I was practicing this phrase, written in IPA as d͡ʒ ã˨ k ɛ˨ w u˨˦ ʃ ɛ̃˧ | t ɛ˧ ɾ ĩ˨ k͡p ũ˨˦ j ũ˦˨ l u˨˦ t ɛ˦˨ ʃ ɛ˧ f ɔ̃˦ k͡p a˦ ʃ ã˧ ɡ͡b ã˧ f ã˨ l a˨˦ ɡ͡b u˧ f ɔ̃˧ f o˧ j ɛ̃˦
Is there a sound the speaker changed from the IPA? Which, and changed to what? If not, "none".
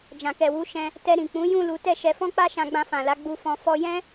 o˧ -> ɔ˧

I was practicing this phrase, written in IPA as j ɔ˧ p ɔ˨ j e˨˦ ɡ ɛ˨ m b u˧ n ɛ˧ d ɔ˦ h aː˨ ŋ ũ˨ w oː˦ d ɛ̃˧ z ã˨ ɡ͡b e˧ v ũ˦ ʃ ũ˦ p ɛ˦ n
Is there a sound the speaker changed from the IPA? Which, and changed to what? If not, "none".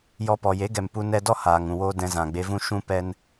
b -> p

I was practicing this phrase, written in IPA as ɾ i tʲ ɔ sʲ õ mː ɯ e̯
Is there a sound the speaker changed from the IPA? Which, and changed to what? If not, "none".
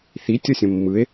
ɾ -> θ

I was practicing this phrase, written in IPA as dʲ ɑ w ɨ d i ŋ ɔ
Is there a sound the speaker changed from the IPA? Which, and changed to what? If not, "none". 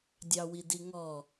ɨ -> i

